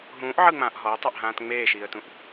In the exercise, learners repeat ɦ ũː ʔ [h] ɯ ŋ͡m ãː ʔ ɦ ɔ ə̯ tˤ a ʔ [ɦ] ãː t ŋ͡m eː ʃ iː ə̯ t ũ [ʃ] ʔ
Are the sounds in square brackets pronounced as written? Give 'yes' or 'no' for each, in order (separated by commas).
no, yes, no